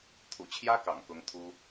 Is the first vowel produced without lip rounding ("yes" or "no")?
no